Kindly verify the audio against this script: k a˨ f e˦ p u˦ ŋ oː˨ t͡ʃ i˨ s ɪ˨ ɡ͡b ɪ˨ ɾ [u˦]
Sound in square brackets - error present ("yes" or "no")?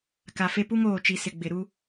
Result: no